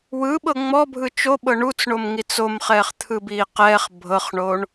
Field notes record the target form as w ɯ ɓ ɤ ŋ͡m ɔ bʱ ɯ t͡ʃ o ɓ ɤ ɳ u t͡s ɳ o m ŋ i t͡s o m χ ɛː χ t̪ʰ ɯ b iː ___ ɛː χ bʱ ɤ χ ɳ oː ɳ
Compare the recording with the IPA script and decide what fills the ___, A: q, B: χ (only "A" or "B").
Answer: A